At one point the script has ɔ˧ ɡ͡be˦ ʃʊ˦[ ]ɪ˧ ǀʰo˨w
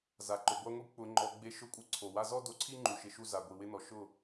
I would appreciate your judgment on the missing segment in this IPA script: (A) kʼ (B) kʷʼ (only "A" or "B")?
B